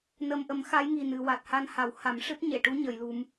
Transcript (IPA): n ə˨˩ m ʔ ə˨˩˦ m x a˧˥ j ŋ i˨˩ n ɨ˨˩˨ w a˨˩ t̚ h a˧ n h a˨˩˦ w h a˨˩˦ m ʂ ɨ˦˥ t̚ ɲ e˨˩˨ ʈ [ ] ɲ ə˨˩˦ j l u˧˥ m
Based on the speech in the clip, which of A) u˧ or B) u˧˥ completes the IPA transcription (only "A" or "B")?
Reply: B